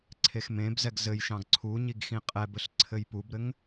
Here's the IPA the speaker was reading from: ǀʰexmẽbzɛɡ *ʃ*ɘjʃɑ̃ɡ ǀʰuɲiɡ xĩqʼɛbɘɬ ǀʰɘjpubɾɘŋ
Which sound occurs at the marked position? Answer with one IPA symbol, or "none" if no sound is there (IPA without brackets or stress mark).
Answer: z